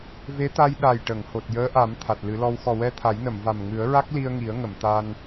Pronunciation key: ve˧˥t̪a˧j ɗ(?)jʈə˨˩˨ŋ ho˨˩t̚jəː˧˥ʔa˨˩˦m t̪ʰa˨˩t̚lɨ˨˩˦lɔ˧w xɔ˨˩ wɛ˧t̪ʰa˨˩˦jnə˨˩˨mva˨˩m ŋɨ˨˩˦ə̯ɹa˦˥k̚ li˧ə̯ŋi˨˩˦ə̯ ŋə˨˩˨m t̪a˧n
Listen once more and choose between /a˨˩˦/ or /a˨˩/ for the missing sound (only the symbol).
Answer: a˨˩